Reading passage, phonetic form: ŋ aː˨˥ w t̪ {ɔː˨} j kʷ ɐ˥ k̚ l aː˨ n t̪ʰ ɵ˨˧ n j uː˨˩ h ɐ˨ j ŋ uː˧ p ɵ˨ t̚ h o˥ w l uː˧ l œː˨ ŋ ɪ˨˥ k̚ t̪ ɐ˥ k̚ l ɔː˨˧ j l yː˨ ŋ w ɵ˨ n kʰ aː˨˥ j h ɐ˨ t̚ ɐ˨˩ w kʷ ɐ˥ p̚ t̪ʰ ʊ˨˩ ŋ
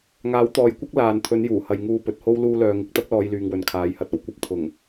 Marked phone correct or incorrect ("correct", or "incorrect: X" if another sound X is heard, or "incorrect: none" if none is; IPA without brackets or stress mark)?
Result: correct